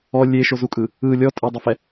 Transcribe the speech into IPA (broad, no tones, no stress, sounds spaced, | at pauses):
ɔ lʲ e ʃ o z u kʼ ɯ | ɯ lʲ ɔ tʼ e dˤ ɛ f ɛ